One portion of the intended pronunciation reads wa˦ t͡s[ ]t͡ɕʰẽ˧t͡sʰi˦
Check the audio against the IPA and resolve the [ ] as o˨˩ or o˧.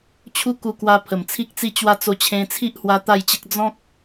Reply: o˧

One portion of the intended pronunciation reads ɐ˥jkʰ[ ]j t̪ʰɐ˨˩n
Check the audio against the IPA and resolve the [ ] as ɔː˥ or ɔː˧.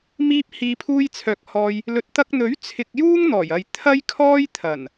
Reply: ɔː˥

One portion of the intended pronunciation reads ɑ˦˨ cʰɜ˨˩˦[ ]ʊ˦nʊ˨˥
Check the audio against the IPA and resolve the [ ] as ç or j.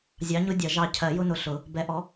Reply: j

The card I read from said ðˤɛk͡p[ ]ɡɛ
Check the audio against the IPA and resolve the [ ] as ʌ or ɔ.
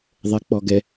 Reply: ɔ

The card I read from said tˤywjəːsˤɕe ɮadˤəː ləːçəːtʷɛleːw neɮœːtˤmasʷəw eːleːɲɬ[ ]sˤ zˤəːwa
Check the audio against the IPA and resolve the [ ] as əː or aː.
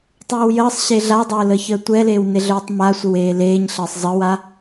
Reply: əː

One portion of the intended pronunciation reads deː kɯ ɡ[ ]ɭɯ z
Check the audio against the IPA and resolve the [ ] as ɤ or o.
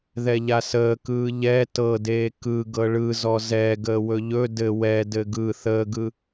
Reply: ɤ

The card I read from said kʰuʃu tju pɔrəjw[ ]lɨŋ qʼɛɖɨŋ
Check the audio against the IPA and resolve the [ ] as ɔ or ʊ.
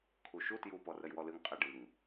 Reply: ɔ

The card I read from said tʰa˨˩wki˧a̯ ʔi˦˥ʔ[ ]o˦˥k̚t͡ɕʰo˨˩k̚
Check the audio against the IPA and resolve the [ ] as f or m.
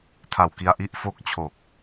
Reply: f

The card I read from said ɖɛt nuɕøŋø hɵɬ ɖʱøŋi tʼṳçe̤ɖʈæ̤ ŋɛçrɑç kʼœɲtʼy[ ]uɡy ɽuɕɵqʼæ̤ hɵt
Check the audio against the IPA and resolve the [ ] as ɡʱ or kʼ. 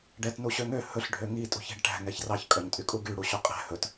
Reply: kʼ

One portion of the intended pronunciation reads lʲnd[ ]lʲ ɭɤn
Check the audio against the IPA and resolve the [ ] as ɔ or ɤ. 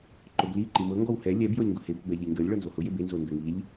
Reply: ɤ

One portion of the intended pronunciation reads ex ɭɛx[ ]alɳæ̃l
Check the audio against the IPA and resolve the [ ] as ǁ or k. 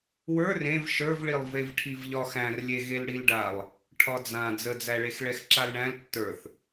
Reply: ǁ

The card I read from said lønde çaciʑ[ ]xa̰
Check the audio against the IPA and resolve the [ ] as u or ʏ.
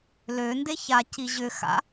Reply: ʏ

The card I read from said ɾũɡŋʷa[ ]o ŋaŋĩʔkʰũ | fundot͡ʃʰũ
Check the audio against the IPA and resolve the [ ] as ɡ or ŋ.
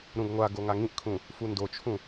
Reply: ɡ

